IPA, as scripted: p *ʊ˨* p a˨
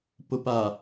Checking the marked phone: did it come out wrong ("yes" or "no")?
no